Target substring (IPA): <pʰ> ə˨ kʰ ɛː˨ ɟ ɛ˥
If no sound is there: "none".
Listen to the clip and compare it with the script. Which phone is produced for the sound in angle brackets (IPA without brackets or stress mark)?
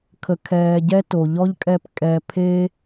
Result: kʰ